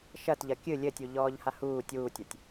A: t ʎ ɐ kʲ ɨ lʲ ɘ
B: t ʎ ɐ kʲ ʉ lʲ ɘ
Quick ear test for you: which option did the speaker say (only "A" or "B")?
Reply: A